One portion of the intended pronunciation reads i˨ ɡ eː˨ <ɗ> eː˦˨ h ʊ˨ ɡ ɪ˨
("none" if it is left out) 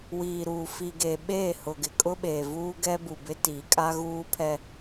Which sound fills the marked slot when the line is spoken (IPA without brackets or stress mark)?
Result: ɓ